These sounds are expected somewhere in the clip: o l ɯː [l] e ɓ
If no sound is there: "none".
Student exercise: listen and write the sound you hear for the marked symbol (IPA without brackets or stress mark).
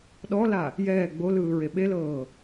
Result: ɹ